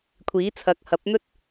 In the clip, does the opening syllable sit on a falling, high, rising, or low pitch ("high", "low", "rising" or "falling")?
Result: rising